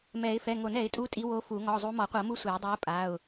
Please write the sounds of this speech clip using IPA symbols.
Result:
mɛ˨˩˦ɪ̯ fɛ˩˧˩ŋo˨˩˦nɛ˨˩˦ɪ̯tʼu˧˥ tʼi˧˥wo˧˥fu˨˩˦ ŋɔ˩˧˩zˤu˧˥ mɔ˨˩˦qʷɤ˨˩˦mu˧˥ sʷe˨˩˦ʊ̯dˤɤ˧˥ʊ̯pʼa˩˧˩ʊ̯

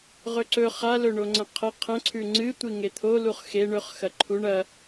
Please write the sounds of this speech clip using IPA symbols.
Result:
ʁɵǀɵ χalɵ ɳoŋ͡ǀɐ̃qʰɐ qʰɐ̃ ǀʰʉŋ͡ǀɨ tʷiŋet̪ʰoluχ xe ɳɵχxɐ ǃʰuɳ ɐ

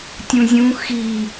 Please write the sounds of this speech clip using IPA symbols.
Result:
tʲũzʲũ xi

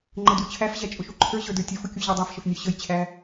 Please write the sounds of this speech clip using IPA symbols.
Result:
ŋ͡ǃədut͡ɕʰæfʑæ t͡ʃʼʊʃuǃʰə˞ʑə˞ də˞tʲəfʊ kʲuʑɛdˤæfʃəf nʲə˞ɕəjt͡ɕʰæ

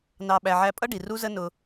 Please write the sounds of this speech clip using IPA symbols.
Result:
nɑ˧ ɓæ˧ʕæ˦ pʼʌ˦ɖi˨ ru˦zə˦ nʊ˧

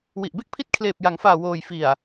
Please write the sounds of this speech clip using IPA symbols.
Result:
wi˨˩ʔbe˥˩k̚pʰi˦˥t̚ kʰleː˨˩p̚ja˩˦ŋfaː˨˩ woː˨˩j fi˨˩a̯

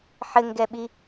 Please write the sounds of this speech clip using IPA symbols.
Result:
ħɘŋɡɛɓi

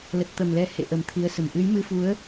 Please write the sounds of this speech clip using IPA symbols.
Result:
lə˨˩t̚t̪ə˨˩mlɛ˨˦ hḛ˧˨ ʔə˨˩mt̪ʰi˨˦ə̯sə˧˩m ʔɨ˨˦j mɨ˧fu˨˦ə̯

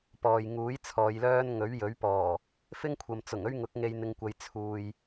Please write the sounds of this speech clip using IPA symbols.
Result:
pɔː˨j ŋuː˨˥j t͡sʰɔː˨˧jlœː˥n ŋɵ˨˥ɥjɵ˨˥ɥpɔː˨˩ | fɪ˥ŋkʷʰɐ˨m t͡sʊ˨˩ŋɵ˥ɥŋʊ˨˥k̚ ŋe˧jn̪ɪ˨˧ŋkʷɐ˨˧j t͡sʰuː˨j

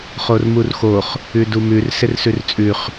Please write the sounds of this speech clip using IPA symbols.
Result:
χormurxoχ | ʉdumʉr sɪrsʉrt͡sʼʉχ

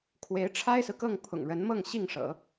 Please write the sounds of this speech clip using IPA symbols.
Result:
kʰwe˧˥ɪ̯ʈ͡ʂʰa˥ɪ̯sɹ̩˨kɤ˥˩ŋ pʰʊ̰˨˩ŋɻə˧˥nmɤ˥˧ŋ ɕi˥˩ŋʂɤ̰˨˩˦

